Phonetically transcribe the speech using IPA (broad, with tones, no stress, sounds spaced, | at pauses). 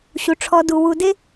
ɕ u˩ ʈ͡ʂʰ ɔ˨ d u˩ w u˨ d e˥